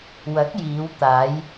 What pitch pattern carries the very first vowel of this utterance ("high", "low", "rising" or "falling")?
rising